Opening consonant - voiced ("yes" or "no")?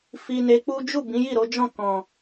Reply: no